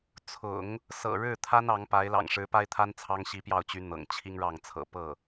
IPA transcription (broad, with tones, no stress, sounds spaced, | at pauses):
t͡sʰ ʊ̰˨˩˦ ŋ | s ɤ̰˨˩ ɻ ɻ̩˥˩ t̪ʰ a˥ n ɑ˧˥ ŋ p a˧˥ ɪ̯ l ɑ̰˨˩ ŋ ʂ ɻ̩˧˥ p a˥ ɪ̯ t̪ʰ a˥ n t͡sʰ ɑ˥ ŋ ɕ i˧˥ p j ɑ˥˩ ʊ̯ t͡ɕ y˧˥ n̪ ɤ̰˨˩ ŋ t͡ɕʰ i˥ ŋ ɻ ɑ˥˩ ŋ t͡sʰ ɤ̰˨˩ p ɤ˥˩